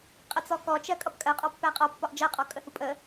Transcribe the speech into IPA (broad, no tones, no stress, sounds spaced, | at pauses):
qʼ ə t͡s ɔ k ɔ t͡ʃ ɜ kʼ ʌ p kʼ ɜ qʼ ɒ pː æ qʼ ɒ pː ɒ ʔ d͡ʒ ɜ qʼ ɔ kʼ ə h u pʼ ə